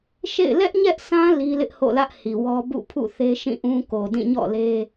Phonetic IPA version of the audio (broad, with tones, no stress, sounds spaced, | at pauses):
ʃ ḛ˦˨ ɪ̯ l ɛ˦ ʔ ɲ ɛ˦ ʔ sʰ ã˦ l i˦ l ɪ˦ ʔ h o̰˦˨ l ä˦ ʔ h i˨ w ɔ˦ b ṵ˦˨ pʰ ṵ˦˨ θ e˦ ʃ ĩ˦˨ ʔ ũ˦ k o˨ d ĩ˦˨ ɲ ɔ̰˦˨ l e˦